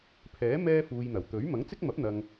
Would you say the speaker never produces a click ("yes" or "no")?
yes